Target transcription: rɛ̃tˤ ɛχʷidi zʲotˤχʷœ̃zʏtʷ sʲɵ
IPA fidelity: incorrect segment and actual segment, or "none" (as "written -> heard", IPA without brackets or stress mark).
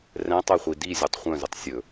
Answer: tʷ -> tˤ